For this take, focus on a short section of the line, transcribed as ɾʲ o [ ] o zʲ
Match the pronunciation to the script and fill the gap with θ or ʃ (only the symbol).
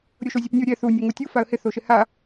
ʃ